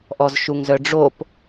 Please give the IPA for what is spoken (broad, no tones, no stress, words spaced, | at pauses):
ʔɔzʃuŋzœɖ͡ʐop